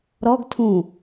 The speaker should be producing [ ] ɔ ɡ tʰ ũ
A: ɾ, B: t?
A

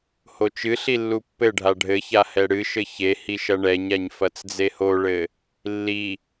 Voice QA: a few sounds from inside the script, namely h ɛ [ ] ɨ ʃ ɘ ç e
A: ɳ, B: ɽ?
B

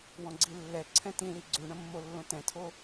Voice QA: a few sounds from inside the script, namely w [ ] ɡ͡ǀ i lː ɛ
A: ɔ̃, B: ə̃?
A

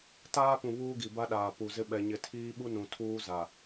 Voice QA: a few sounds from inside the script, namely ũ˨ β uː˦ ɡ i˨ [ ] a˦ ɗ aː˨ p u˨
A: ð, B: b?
B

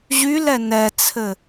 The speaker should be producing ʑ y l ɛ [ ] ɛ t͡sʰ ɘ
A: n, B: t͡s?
A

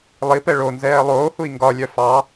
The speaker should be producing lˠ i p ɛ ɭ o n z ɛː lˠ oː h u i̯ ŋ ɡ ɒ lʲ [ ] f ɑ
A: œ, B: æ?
A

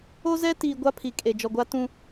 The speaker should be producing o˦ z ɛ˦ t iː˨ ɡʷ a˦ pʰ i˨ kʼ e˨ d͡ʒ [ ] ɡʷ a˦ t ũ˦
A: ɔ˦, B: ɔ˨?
B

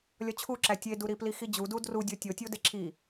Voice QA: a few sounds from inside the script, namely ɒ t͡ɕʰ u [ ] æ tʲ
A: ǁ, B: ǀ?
A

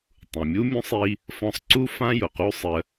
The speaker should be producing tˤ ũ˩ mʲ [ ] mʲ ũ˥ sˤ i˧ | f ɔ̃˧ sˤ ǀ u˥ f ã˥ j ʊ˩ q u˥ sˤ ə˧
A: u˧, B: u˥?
B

